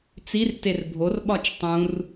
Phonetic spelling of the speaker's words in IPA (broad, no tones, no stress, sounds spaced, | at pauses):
t͡s i r t e r bʱ o r ɓ ɒ t͡ʃ tˤ ũ r